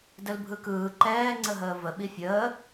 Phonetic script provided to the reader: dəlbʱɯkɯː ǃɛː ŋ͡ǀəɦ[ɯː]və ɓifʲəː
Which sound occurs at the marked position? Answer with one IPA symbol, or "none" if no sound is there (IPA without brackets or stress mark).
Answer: əː